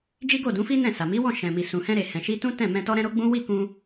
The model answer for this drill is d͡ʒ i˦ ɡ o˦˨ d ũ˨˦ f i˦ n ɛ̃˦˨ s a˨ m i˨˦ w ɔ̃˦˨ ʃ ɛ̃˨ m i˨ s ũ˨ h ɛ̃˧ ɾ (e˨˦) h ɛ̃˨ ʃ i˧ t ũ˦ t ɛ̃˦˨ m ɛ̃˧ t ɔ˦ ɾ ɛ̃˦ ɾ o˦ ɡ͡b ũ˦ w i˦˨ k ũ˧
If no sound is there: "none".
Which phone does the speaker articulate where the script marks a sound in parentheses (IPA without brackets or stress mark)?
e˨